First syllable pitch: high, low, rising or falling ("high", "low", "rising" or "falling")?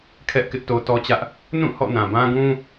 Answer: high